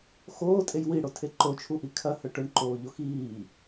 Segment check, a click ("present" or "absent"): present